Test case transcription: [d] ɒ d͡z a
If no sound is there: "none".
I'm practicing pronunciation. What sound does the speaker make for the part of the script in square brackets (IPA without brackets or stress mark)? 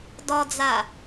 d